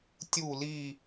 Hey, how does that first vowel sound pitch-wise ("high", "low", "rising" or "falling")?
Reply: falling